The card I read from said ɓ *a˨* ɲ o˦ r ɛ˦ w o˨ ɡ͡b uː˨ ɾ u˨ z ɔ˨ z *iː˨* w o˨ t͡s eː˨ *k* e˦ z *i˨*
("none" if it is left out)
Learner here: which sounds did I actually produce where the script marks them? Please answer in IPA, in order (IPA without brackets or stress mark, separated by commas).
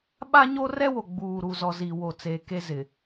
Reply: a˦, i˨, k, ɪ˨